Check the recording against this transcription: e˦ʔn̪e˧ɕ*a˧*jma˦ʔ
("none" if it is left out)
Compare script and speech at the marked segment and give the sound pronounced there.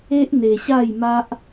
a˥˧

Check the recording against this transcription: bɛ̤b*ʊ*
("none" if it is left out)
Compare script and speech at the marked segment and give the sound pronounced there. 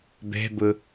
ʊ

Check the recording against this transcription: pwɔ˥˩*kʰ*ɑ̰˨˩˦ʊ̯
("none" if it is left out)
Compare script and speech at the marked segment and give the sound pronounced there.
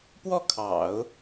kʰ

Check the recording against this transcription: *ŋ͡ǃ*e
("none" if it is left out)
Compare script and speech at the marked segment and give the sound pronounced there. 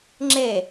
ŋ͡ǁ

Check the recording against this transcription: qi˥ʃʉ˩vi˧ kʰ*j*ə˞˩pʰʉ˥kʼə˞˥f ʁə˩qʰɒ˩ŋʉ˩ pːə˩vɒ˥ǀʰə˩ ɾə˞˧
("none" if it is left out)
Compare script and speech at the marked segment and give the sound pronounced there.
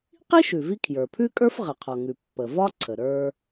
j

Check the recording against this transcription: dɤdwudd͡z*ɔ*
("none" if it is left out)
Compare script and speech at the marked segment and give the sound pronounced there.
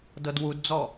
ɔ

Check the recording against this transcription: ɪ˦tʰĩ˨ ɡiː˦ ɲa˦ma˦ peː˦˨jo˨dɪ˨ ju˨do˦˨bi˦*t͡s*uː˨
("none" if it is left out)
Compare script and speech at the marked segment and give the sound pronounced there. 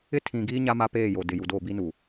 n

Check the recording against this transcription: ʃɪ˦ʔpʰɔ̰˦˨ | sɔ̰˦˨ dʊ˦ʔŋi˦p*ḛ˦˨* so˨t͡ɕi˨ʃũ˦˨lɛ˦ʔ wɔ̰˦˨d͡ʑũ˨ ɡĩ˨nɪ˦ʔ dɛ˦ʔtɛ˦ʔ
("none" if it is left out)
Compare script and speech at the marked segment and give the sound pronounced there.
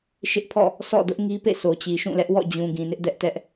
ḛ˦˨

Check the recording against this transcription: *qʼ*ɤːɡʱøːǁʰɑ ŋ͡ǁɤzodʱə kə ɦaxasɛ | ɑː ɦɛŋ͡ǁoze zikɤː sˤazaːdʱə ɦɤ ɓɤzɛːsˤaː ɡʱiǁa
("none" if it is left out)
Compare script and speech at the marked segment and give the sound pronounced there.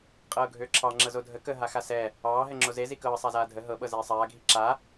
qʼ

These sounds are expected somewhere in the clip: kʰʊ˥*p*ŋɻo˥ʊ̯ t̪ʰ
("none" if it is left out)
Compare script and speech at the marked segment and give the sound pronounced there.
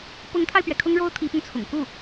none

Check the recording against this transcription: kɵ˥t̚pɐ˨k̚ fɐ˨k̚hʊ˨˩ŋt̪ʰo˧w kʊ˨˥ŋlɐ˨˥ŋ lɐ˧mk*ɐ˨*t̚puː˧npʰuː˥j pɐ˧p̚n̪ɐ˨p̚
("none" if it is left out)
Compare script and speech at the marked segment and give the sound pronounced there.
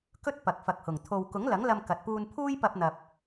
ɐ˨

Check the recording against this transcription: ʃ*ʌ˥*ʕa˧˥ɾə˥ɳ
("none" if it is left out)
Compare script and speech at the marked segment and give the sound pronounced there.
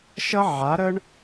ʌ˥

